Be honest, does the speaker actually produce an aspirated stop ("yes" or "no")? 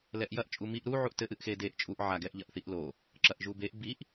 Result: no